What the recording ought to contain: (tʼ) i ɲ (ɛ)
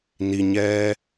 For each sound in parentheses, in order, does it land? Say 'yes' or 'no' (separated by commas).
no, no